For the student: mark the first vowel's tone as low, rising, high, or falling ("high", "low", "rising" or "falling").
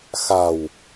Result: low